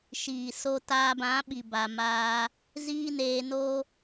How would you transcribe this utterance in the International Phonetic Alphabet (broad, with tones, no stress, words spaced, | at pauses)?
ʃiː˨so˧ taː˧bã˨˦ɓi˨ ba˨maː˧ | ziː˦neː˧noː˦